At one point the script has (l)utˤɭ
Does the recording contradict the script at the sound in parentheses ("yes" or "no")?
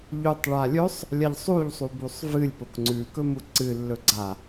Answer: yes